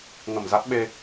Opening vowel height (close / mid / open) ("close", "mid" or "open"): mid